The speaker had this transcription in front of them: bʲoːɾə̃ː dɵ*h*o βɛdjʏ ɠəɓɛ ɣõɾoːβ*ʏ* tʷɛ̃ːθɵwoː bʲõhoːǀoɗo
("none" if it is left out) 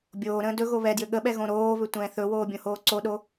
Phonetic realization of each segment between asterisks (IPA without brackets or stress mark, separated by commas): ɣ, ʏ